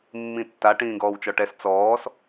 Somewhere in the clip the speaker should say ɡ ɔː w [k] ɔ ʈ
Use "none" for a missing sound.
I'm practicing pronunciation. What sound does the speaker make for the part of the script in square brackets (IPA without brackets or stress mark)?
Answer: t͡ʃ